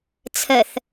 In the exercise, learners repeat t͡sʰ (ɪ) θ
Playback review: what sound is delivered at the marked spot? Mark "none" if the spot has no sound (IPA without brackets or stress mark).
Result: ə